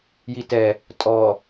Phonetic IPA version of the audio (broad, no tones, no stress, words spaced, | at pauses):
jitɛ | tʼɔ